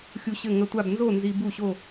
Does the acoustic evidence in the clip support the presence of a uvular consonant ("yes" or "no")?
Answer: no